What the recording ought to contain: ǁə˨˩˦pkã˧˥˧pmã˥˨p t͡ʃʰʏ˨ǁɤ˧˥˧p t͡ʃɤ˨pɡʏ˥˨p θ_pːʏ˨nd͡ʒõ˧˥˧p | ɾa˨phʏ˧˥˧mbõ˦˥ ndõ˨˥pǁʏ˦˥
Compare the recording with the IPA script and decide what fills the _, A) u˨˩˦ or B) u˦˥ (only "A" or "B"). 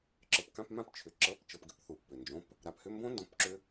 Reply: A